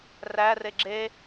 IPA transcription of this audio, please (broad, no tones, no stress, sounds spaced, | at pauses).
r æ r e ɡ͡ǁ e